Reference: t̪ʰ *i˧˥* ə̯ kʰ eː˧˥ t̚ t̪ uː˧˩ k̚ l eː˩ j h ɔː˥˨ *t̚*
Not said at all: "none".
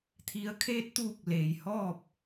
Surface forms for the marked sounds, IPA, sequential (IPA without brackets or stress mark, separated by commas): i˩˧, p̚